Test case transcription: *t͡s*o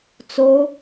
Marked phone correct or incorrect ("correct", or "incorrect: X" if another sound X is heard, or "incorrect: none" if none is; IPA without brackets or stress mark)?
correct